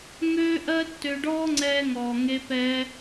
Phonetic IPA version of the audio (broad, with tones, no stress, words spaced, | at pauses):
ŋøː˦ʔɜ˦ tːø˧ɖɔː˦ŋ͡ǀɛː˧ŋɔː˨ ŋe˧pɛː˧